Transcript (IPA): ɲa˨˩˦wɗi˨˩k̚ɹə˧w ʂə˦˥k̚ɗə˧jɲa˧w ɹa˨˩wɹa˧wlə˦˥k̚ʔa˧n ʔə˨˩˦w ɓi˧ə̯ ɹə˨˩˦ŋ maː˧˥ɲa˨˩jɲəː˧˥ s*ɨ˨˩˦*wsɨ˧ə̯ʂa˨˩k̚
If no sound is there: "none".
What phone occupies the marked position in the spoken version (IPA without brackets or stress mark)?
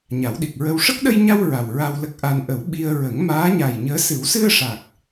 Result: ɨ˨˩˦